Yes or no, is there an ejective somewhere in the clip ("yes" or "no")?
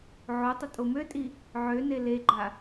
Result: yes